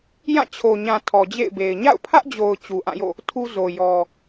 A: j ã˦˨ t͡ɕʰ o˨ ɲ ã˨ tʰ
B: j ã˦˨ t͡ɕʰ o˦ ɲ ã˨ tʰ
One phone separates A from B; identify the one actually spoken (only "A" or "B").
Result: A